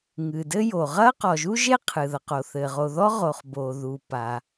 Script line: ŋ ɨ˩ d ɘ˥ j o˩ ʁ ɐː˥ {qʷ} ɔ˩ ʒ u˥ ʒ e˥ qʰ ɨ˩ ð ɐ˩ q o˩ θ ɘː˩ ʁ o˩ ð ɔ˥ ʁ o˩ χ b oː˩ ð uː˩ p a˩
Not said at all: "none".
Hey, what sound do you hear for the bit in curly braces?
q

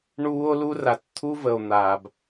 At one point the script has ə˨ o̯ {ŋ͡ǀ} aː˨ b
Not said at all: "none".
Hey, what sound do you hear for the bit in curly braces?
n̪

